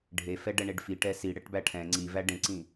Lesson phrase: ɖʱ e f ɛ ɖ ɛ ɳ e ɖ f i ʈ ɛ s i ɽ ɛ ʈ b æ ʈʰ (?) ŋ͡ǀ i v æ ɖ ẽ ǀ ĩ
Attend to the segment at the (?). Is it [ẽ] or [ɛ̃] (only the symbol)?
ɛ̃